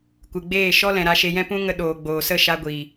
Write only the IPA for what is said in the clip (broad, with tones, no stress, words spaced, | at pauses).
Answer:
kʷɨ˨ɡ͡beː˦˨ʃɔ˦ lɛ̃˨ɾa˧ʃe˧ jɛ̃˦pũ˦ ŋə˧ɗoː˨ ɡ͡boː˨sə˦˨ ʃa˧ɡʷiː˨